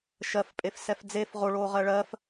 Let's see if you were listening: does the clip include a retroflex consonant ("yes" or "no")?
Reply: yes